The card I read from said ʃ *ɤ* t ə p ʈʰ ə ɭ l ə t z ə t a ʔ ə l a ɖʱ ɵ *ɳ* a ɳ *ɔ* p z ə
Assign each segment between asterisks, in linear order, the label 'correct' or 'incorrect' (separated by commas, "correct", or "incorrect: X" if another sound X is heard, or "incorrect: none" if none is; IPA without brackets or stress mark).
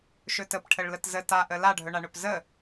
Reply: incorrect: ɵ, correct, incorrect: ɵ